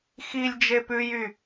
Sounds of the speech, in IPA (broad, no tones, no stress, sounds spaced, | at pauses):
x i lʲ d͡ʒ e p ʉ j y